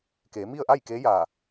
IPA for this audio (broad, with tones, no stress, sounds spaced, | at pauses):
k eː˩˧ m i˥˨ ə̯ ʔ a˥˨ j k eː˧˥ j aː˧˩